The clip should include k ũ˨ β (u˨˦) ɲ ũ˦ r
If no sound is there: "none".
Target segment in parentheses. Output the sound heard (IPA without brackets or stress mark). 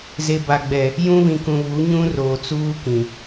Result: u˨˦